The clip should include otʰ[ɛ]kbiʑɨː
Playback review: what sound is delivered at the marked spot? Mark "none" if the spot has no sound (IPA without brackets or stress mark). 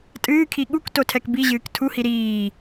ɛ